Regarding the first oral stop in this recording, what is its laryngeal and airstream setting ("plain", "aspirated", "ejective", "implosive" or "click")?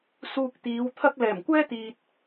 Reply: plain